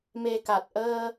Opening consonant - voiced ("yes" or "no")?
yes